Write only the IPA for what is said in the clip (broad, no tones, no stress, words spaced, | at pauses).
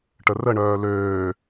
ʈərəɳœː løː